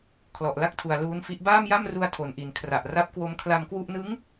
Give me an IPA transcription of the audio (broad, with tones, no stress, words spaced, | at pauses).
kʰlɔ˨˩ʔla˥˩k̚tʰu˨˩a̯ luː˦˥nfi˦˥ʔ baː˥˩mja˥˩mru˧a̯ tʰo˨˩nʔi˨˩n kʰra˨˩ʔra˦˥p̚kwo˦˥m kʰla˧mkwu˥˩ʔ nɯ˦˥ŋ